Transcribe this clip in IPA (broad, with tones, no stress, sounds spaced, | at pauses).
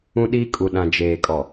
ũ˦ ɗ i˦ kʼ u˨ ɗ ã˨ d͡ʒ eː˨ kʼ ɔ˨